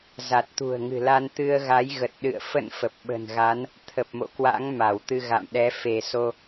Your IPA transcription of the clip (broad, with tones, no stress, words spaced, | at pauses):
za˨˩t̚t̪ṳ˨˩ə̯ŋɨ̤˨˩la˧n t̪ɨ˧ə̯ɣa˨˦jɣə˨˩t̚ɗɨ̰˧˨ə̯ fə̰˧˨n fə˨˩p̚ɓə̤˨˩nɣa˨˦n | t̪ʰə˨˩p̚mo̰˧˨kwa̰˧˥ŋ ma˧˩wt̪ɨ˧ɣa̰˧˨mɗɛ˨˦ fe˧˩so˧